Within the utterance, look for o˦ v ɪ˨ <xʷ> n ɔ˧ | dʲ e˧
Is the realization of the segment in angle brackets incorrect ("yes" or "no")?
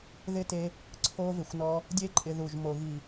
no